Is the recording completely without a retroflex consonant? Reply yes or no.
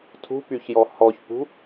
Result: yes